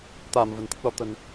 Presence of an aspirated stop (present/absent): absent